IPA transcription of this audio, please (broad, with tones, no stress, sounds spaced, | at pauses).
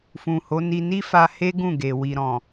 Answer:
f ũ˨ h o˨˦ n i˧ n i˦ f a˧ h e˦ ɡ ũ˦˨ ɡ e˨ w i˨ ɾ ɔ̃˨